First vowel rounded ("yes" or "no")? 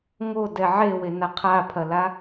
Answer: yes